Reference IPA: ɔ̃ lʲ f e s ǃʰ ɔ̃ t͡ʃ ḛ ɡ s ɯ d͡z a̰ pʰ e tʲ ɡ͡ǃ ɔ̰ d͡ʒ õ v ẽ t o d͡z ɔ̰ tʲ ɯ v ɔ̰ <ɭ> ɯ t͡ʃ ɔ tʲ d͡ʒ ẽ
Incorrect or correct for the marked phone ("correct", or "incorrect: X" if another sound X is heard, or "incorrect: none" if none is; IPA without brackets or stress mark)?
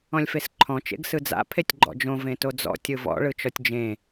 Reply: correct